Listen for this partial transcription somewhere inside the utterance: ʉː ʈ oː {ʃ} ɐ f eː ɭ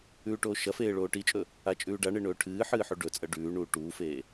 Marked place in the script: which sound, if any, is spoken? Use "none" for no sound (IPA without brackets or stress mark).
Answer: ʃ